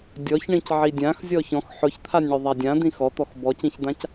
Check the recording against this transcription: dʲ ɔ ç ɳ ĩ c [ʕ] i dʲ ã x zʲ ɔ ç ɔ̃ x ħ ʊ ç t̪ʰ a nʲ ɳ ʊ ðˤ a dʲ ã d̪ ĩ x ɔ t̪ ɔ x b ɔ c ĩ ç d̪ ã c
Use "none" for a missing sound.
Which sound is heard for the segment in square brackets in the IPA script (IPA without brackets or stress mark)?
ʕ